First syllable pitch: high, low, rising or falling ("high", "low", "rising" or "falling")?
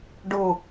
falling